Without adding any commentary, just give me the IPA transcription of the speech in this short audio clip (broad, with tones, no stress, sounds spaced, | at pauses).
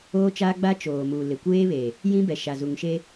oː˦ t͡ʃ aː˦ ɡ͡b a˦ t͡ʃ oː˨ m u˨ l ɪ˨ kʷ eː˦ β e˨ | j ĩ˦ b ɛ˨ ʃ a˨ z u˨ ŋ ʃ e˦